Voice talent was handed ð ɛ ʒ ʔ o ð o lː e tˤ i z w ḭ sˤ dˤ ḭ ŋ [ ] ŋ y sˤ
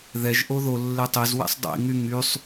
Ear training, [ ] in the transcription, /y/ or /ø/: y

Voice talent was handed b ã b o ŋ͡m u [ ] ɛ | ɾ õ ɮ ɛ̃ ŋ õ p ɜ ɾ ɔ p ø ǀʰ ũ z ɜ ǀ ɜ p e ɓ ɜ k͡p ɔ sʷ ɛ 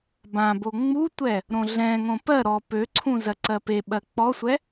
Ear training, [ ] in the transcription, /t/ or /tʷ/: tʷ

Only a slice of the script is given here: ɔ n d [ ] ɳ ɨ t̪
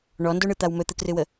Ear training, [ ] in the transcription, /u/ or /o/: o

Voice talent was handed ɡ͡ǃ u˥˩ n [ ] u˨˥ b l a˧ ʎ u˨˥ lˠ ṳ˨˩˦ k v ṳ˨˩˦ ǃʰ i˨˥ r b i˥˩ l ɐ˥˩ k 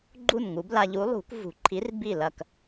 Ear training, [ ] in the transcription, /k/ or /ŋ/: ŋ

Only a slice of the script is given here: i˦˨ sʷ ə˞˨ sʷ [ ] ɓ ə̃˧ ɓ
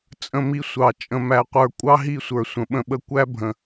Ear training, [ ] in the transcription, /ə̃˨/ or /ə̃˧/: ə̃˨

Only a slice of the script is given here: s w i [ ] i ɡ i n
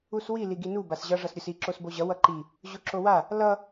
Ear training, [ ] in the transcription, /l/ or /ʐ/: l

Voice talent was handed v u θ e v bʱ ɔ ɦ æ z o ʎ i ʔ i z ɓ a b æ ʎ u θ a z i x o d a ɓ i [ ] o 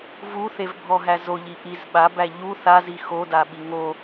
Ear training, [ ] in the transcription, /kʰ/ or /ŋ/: ŋ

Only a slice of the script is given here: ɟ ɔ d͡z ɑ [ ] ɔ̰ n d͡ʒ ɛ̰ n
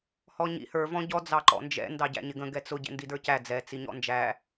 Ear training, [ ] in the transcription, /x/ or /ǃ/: ǃ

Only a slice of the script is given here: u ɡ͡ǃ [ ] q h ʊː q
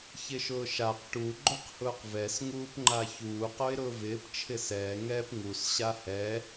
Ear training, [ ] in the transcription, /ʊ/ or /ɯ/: ʊ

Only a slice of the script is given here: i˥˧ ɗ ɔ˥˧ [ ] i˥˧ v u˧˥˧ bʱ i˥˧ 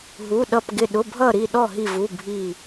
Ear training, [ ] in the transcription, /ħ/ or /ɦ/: ɦ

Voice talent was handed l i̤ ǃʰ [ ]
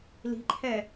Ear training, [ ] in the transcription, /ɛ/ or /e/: ɛ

